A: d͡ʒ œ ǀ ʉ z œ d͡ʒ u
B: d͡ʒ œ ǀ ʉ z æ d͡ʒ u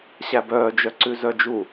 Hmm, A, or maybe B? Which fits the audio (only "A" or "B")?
A